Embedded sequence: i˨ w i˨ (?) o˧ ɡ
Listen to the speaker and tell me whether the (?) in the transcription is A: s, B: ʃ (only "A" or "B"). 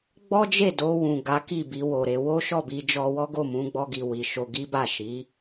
B